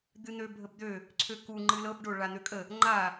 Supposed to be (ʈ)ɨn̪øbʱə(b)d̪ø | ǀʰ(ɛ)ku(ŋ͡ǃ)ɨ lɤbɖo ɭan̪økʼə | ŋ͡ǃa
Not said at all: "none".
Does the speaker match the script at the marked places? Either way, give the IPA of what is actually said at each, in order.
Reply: d̪, b, ø, ŋ͡ǃ

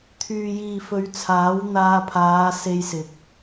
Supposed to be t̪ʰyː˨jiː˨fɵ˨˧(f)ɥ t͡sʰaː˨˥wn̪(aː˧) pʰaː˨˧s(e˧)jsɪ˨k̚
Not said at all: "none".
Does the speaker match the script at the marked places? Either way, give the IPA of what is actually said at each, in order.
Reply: none, aː˧, e˧

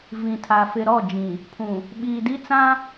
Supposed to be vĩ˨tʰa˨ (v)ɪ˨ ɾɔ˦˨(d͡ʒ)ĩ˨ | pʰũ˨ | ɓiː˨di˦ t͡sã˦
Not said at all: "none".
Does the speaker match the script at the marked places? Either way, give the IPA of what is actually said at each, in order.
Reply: f, d͡ʒ

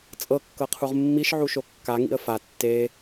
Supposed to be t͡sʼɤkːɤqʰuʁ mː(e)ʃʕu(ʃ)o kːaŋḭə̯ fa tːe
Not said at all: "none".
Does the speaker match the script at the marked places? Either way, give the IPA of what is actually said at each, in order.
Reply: i, ʃ

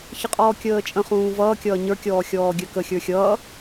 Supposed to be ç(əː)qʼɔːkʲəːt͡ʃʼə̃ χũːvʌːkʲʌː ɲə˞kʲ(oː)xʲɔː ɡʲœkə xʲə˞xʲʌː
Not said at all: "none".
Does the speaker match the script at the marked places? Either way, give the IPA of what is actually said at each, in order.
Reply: ə, ɔː

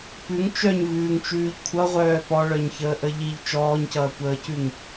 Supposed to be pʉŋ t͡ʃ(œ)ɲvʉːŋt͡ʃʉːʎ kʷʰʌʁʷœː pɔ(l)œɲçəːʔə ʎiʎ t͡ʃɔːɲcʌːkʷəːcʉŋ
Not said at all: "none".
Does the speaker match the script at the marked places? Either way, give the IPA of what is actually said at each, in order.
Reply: œ, ɭ

